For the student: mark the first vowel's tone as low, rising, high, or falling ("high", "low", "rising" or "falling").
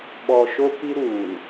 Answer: low